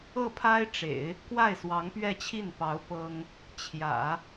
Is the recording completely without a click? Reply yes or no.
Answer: yes